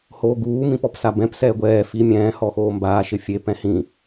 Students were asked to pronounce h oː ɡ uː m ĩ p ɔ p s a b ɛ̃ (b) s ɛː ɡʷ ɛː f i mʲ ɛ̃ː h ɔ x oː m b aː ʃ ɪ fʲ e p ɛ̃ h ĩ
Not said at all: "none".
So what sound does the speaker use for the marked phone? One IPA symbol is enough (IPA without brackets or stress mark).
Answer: p